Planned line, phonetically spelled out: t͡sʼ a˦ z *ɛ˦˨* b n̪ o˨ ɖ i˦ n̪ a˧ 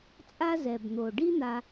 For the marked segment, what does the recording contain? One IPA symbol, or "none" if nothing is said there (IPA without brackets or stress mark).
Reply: ɛ˨